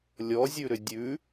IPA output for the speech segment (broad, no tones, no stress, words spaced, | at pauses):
lʲɔzʲʉɾʏ dʲʉ